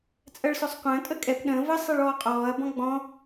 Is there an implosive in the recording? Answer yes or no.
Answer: yes